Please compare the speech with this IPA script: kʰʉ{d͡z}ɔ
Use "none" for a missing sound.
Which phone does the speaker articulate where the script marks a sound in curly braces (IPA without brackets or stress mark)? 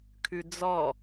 d͡z